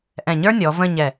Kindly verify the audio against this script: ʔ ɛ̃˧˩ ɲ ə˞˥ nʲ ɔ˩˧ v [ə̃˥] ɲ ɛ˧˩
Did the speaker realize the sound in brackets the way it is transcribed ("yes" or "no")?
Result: no